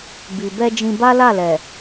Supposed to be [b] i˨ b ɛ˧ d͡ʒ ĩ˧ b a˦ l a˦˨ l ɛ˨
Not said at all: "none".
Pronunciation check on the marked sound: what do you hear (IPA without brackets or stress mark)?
b